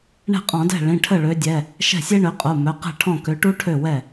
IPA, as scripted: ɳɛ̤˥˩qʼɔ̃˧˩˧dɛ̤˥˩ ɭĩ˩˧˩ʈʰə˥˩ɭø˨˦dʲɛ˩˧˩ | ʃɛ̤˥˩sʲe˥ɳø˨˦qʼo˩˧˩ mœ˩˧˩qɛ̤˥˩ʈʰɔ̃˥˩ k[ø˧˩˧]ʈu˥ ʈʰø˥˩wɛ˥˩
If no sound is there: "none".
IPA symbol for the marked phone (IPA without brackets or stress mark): ø˨˦